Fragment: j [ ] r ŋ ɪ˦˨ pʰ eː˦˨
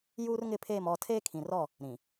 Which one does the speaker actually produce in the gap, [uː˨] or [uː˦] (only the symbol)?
uː˦